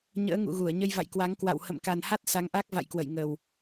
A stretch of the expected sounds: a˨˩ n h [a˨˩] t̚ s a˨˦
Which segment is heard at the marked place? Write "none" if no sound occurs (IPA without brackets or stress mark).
a˦˥